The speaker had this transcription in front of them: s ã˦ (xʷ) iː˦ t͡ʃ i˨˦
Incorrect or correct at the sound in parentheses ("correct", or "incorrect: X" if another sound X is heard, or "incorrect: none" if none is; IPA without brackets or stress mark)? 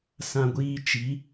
incorrect: ɡʷ